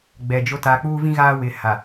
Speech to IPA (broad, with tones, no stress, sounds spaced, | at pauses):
ɡ͡b ɛ˨ d͡ʒ o˦ t aː˨ k͡p uː˦ v ĩ˦ ɣ aː˦ w ɪ˨ h a˨